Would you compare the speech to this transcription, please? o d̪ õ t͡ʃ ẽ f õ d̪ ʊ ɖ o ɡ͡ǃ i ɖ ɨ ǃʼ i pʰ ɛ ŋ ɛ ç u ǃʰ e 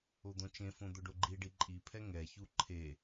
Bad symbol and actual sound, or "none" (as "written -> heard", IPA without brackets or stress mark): ɨ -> i